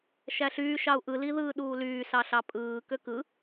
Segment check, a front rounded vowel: present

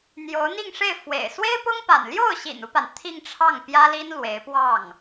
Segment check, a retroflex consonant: present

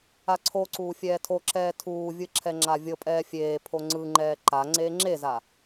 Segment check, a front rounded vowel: absent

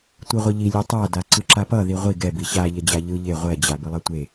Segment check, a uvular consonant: present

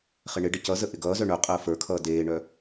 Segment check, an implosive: absent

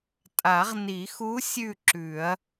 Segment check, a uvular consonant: present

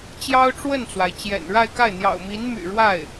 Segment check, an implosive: absent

